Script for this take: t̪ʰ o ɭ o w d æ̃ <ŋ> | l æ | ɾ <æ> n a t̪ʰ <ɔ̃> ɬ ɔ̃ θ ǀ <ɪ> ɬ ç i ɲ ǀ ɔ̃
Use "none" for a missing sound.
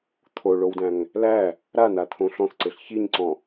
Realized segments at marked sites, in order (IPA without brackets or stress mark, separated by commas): ŋ, a, õ, ɪ